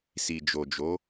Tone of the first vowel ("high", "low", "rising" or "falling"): low